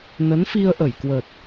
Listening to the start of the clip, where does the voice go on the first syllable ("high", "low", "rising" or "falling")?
rising